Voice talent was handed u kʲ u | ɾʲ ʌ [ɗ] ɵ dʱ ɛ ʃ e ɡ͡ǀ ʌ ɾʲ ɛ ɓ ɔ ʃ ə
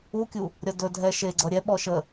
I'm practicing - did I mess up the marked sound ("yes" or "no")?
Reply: yes